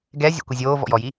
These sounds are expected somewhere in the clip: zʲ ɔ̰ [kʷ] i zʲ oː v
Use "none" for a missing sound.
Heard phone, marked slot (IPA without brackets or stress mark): kʷ